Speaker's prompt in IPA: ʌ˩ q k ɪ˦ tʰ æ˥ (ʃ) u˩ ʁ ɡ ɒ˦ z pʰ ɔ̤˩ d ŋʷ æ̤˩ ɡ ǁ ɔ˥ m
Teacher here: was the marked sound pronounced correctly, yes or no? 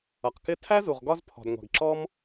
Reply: no